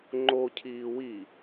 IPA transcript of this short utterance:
ŋ͡ǃ o cʰ iː w i

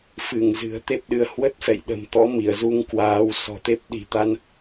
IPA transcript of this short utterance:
f ɨ˧˩ ŋ z ɨ̤˨˩ ə̯ t̪ e˦˥ p̚ ɗ ɨ˨˦ ə̯ h w ə˦˥ t̚ f ɛ̰˧˨ j ɗ ə̤˨˩ m t̪ ɔ̰˧˥ m i˧˩ ə̯ z u˧ ŋ k w aː˨˦ w s ɔ̤˨˩ t̪ e˦˥ p̚ ɗ i̤˨˩ t̪ a˧ n

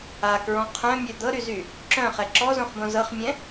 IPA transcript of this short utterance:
a k ɹ ɔ̃ qʰ œ̃ mʲ œ d̪ ɤ ɾ y z y | ǁ œ̃ χ ɛ ǁ ɔ z õ χ b õ z ɤ χ mʲ ɛ̃

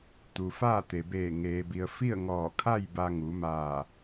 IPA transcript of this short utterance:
t̪ u˩ f aː˥˨ t̪ e˩ b eː˧˩ ŋ eː˩ b i˩ ə̯ f i˥˨ ə̯ ŋ ɔː˧˩ kʰ a˥˨ j b a˧ ŋ u˩˧ m aː˧˩

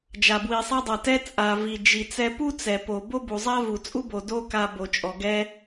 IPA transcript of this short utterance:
d͡ʒ a˩ b w i˩ sˤ ɛ˧ dˤ a˩ t ɛ˧ t͡sʼ a˩ v i˩ d͡ʒ i˩ t͡s ɛ˧ p u˥ t͡s ɛ˩ p o˩ b o˥ b u˩ zˤ a˥ v u˩ t͡sʼ u˥ b o˩ d o˥ k a˧ b o˩ t͡ʃʼ ɔ˩ ɡ ɛ˧

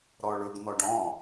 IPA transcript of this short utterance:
ɾ ɔ ɭ ɵ ɡ n̪ ɔ ɖ ɔ̃

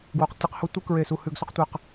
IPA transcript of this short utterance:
ɡ w o˦˨ q tʲ ɐ˥ q h o˥ tʷ ɨ˥ k ɹ e˦˨ s u˦˨ h ʉ˦˨ ɡ s ɵ˥ q tʷ ɨ˦˨ q

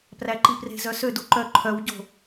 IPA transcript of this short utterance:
p r æ ǃ i p r e̤ z œ s ø d u ǃ œ ǃʰ œ w ɟ o̤

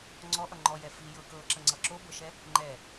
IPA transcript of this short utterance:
ŋ͡ǀ ɔ ʔ ʌ ŋ͡ǃ ɔ j ɛ f i j ɤ k ɤ ǁ ə ŋ͡ǀ ʌ ǁ o b ɤ ʃ ɛ | ŋ͡ǃ ɛ

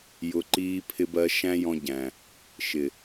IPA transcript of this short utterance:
j ʊ˧ ǃ iː˦ pʰ ɪ˦ b ɜ˦ ʃ æ̃˦ j ɔ̃˧ ɟ æ̃˨ | ʃ ɪ˨

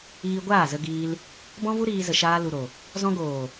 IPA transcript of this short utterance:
iː˧ ɡʷ aː˦˨ z ə˧ ɡ iː˧ l | b ɔ̃˦ v u˦ ɾ iː˧ z ə˨ ʃ aː˧ l u˨ ɾ o˨ | z ɔ̃˧ ɡ oː˨

